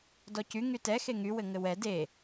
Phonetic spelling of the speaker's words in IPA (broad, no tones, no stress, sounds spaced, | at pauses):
d ɔ c y ŋ y t ɛ x e ŋ y w ɘ ŋ ɘ w ɛ d e